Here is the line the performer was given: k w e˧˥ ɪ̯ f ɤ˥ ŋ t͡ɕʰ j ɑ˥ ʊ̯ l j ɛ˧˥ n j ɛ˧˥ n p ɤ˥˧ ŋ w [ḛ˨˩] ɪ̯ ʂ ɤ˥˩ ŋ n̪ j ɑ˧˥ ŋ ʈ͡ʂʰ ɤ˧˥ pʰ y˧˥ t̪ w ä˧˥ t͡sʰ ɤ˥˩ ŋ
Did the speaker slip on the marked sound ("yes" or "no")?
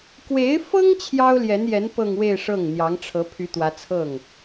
yes